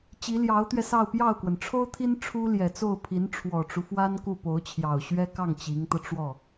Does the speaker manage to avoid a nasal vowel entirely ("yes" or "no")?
yes